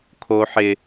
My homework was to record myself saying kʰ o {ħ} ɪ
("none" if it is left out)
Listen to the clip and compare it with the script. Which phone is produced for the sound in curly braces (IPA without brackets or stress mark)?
ħ